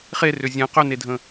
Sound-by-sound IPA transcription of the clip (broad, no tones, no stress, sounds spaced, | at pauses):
χ e r ʏ zʲ ɛ̃ q ʏ n e dʱ ə̃